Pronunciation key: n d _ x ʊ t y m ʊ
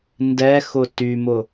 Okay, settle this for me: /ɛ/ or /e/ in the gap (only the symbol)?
ɛ